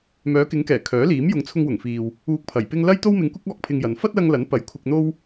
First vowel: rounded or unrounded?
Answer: rounded